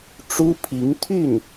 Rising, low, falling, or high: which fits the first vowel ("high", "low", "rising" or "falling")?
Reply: high